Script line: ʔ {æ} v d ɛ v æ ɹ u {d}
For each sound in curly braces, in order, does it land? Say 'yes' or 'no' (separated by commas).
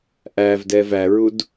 yes, yes